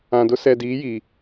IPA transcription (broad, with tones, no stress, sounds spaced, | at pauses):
ã˨ d ʊ˦ s ɛ˨ d iː˨˦ j iː˨